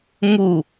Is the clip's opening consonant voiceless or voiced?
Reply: voiced